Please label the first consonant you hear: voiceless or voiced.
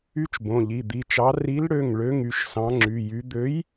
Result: voiceless